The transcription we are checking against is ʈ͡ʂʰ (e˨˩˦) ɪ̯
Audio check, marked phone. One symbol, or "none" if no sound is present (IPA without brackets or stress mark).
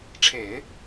e˨˩˦